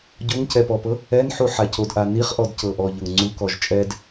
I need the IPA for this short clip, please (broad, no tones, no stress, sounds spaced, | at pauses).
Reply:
ɟ o ŋ c ɛ p ɔ p ɤ | ɛ n ħ u ħ a c o d ʔ a n i χ ʔ ɔ d c ɤ ʔ ɔ ʎ ɤ ŋ ŋ͡ǀ u k ɔ ʒ t͡ʃʼ ɛ d